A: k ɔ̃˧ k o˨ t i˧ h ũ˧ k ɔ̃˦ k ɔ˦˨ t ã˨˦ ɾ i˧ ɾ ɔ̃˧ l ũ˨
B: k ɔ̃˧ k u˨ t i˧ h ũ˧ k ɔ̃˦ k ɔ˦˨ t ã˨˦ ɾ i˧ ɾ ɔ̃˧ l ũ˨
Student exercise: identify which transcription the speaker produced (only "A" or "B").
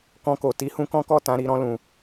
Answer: A